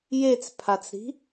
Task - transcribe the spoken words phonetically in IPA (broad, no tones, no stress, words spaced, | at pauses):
jet͡spʰat͡sɾi̤